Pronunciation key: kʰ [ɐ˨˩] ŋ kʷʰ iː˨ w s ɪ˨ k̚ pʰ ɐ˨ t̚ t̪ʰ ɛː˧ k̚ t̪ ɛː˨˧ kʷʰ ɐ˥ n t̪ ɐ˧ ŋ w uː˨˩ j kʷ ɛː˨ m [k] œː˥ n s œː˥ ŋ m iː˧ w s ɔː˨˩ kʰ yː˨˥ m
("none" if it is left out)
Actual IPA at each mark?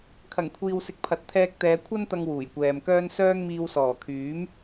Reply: ɐ˨˩, k

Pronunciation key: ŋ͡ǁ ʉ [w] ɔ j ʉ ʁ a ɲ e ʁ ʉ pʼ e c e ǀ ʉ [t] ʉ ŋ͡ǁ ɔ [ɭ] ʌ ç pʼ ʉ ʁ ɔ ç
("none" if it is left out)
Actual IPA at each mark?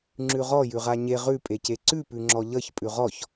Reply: ʁ, p, ʎ

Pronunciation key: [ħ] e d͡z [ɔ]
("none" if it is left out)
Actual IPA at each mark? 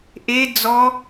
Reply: ʔ, ɔ

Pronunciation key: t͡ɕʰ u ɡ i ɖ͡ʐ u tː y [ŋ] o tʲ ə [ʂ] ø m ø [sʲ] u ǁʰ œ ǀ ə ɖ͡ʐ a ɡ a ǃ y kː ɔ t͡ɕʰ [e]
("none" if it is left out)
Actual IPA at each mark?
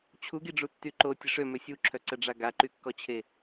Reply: ǃ, ʂ, sʲ, e

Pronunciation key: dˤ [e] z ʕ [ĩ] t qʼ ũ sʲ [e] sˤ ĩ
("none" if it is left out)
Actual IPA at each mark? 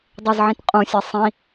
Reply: e, ĩ, ɛ

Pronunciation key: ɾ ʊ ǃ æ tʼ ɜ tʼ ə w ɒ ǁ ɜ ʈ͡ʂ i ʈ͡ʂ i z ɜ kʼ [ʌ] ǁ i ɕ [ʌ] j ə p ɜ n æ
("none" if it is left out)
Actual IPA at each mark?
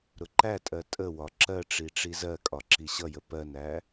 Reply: ɒ, ʌ

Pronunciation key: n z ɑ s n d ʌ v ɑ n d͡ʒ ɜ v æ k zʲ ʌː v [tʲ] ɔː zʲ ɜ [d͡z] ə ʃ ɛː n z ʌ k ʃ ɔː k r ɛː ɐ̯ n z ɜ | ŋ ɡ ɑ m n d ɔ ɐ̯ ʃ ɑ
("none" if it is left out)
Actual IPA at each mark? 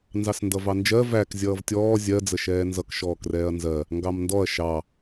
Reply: tʲ, d͡z

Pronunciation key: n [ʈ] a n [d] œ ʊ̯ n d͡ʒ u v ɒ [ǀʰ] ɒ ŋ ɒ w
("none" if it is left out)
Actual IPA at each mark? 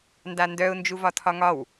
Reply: d, d, tʰ

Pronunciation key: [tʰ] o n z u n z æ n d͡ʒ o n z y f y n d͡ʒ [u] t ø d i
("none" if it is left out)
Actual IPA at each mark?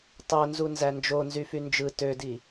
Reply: tˤ, ɯ

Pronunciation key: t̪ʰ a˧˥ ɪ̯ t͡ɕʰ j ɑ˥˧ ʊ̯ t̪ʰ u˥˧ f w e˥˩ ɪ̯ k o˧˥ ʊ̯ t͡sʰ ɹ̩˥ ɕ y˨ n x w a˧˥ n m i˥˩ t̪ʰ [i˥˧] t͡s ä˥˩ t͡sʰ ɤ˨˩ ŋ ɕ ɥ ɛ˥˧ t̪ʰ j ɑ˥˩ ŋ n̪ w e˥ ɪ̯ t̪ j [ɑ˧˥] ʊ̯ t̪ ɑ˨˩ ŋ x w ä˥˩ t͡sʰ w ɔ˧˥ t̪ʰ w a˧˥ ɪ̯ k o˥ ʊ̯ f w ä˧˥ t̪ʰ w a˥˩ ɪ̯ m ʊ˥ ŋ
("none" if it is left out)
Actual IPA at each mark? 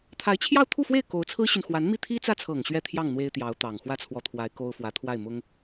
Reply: i˥, ɑ˧˥

